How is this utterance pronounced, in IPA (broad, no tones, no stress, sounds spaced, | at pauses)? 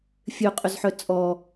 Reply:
fʲ ø qʼ ʏ z ħ œ t͡sʼ ɔ